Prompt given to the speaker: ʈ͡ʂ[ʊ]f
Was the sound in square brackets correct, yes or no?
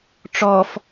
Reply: no